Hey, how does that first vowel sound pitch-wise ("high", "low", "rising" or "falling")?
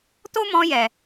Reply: high